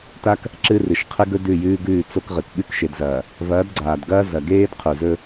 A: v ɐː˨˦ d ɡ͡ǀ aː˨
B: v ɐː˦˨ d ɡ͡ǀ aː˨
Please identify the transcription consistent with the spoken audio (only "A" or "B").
A